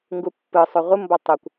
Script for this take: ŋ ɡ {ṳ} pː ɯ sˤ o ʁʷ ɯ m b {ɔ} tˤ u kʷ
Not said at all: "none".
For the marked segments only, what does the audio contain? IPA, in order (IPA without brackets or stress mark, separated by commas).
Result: u, ɔ